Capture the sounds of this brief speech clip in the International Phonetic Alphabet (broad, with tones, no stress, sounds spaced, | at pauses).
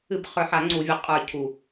ɨ˧˩˧ b χ ə˞˨˩ ħ a˧˩˧ ŋ͡ǀ u˧˩˧ vʲ ə˨˩ qʼ ə˞˨˩ cʰ u˨˩